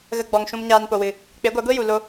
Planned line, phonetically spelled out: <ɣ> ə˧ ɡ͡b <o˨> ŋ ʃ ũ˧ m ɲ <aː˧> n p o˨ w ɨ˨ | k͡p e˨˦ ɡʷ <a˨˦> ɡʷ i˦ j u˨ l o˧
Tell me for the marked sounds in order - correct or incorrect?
correct, incorrect: ɔ˨, correct, correct

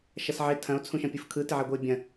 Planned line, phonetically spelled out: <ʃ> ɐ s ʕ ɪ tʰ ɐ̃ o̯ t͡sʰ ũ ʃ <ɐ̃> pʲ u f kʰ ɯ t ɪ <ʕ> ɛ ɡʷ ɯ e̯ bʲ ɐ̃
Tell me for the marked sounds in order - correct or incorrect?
correct, correct, correct

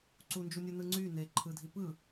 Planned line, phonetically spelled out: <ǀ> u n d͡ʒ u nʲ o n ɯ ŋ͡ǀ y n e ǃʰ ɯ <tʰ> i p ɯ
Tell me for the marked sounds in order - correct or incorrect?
correct, incorrect: dʱ

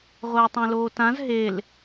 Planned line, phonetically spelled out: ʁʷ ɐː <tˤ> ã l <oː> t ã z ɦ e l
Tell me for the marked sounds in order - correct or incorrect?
correct, correct

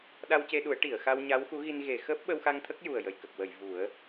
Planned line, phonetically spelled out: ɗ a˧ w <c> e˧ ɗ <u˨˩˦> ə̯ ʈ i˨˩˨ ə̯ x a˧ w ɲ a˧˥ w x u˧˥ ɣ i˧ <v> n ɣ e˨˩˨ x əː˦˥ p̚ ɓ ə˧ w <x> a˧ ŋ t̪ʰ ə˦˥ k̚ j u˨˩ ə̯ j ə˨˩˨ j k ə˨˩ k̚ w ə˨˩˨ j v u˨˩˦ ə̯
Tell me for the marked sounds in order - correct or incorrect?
correct, correct, incorrect: none, correct

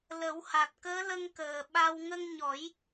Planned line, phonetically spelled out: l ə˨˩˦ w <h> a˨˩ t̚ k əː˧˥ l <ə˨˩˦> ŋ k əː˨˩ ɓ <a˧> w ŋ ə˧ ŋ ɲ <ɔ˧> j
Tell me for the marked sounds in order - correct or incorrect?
correct, incorrect: ə˧, correct, incorrect: ɔ˨˩˦

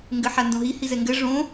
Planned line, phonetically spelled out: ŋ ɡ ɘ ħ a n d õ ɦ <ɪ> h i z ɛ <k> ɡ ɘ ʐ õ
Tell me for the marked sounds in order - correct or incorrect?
incorrect: i, incorrect: ŋ

